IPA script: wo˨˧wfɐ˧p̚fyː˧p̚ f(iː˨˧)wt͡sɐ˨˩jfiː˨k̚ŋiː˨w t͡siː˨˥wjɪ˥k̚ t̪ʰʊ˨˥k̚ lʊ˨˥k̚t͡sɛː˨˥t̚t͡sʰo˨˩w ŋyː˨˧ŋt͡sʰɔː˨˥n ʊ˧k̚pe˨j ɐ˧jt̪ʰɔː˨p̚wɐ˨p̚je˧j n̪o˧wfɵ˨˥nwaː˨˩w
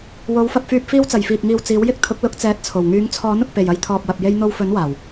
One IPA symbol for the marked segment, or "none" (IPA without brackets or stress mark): iː˧